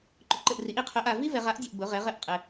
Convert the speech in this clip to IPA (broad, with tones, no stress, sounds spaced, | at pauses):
ǃ ʊ˧ ǃ ɘ˧ ʔ r i˧˥ ʔ i˧ qʰ ʊ˧˥ ʔ a˧ v i˥ v ɛ˧ ʁ a˥ ʔ dʲ ʊ˧ ʔ b ʊ˧˥ ʁ ɛ˧˥ ʁ ɘ˩ ʔ qʼ ɘ˧